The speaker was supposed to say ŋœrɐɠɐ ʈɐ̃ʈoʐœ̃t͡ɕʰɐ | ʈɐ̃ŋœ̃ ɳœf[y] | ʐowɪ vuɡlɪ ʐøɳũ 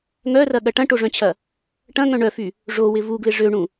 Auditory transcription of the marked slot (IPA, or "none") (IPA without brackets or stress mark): y